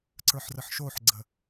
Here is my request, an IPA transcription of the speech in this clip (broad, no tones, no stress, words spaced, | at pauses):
ǀə˞ħrəħʃoħɡ͡ǀə